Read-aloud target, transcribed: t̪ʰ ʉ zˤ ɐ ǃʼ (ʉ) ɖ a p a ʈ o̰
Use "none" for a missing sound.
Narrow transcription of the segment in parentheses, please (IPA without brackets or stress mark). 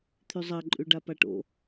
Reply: ʉ